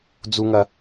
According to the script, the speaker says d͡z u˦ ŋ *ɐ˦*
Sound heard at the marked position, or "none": ɐ˦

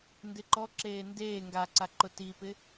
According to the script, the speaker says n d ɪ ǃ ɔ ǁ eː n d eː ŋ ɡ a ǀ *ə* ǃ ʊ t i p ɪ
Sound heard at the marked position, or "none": a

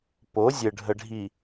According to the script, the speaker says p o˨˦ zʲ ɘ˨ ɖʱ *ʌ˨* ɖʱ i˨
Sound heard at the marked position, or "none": ə˨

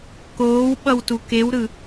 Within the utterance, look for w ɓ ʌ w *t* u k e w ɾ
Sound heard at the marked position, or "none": t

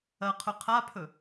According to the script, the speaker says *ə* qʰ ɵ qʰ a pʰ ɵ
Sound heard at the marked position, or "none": ɐ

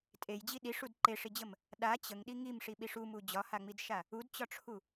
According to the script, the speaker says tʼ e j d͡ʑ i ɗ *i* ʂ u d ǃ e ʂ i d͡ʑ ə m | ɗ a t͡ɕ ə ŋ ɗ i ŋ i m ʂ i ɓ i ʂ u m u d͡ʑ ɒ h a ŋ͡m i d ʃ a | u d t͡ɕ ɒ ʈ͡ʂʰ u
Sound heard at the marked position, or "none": i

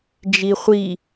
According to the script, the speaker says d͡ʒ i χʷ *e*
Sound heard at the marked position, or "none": i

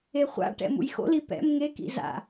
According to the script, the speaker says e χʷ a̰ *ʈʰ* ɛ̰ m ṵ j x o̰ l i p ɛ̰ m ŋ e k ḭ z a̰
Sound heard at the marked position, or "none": ʈ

